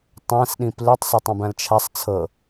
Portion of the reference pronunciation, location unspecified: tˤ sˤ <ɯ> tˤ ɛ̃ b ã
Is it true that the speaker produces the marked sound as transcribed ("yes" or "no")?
no